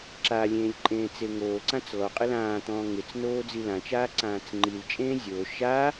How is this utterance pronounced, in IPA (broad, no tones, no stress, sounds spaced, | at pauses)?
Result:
ǁ a lʲ ẽː lʲ ǃʼ ẽː t͡s e ŋ oː ǀ ã t͡s l ɔ qʼ ɪ l ãː t̪ ɔ̃ː ŋ ɪ t͡s n oː d͡z i l ã t͡ʃ aː ǀ ãː t͡s ŋ͡ǃ i l t͡ʃʼ ẽː zʲ o ʃ a